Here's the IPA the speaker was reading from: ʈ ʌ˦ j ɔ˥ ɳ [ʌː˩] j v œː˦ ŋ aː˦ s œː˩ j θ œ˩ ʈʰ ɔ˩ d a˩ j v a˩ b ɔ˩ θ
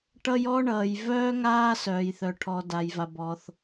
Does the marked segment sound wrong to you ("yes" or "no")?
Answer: no